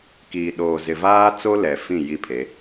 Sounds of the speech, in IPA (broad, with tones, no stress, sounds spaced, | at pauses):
k iː˨ ɗ oː˨ z ɪ˨ v aː˦ t͡s o˦ l ɛ˨ f ĩ˦˨ j i˦ pʰ e˨˦